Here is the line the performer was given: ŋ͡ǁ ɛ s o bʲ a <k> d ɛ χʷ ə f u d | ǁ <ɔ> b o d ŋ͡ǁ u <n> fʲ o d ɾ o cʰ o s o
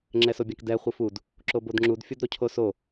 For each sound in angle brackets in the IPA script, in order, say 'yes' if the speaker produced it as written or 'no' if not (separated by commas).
yes, no, no